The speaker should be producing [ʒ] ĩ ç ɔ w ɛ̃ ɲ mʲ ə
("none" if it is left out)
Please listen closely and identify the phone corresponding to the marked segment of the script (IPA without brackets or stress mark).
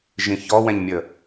ʒ